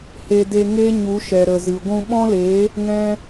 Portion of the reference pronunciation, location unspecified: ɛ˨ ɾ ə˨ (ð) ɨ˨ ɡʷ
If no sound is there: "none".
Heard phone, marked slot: z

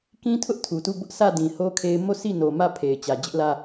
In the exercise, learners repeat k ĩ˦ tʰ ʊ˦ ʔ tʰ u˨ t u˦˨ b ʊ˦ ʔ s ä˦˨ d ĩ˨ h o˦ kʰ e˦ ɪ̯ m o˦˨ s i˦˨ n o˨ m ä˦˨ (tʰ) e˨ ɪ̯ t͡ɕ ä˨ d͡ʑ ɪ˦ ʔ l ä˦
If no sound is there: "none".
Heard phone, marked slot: pʰ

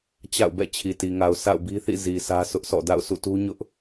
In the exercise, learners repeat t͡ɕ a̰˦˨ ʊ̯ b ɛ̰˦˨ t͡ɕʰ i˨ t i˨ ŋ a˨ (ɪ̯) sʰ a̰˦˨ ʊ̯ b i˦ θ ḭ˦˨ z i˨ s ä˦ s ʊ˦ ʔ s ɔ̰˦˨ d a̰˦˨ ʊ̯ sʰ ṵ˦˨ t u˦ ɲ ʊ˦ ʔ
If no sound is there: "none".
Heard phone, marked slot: ʊ̯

